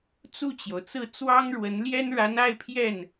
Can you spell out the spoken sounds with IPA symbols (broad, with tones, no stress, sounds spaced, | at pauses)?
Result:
t͡s u˥˩ t͡ɕ j o˩ ʊ̯ t͡s ɹ̩˥˩ t͡s w ɑ˥ ŋ ɻ w ə˧˥ n l j ɛ˥ n ɻ a˧˥ n a˥˧ ɪ̯ pʰ j ɛ˥˩ n